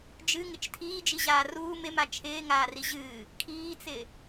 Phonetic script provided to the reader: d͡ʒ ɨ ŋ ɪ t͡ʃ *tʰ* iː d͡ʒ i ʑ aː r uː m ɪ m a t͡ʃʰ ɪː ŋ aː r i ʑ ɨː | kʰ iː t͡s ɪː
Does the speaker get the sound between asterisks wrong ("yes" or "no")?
no